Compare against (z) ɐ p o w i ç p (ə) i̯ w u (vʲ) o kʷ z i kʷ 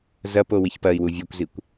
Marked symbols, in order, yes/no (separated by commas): yes, no, yes